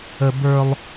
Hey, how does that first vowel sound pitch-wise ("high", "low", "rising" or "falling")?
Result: high